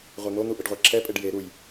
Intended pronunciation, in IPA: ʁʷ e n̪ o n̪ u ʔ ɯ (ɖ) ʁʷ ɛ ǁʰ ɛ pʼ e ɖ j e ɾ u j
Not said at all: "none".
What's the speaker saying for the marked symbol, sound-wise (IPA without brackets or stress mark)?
ɖ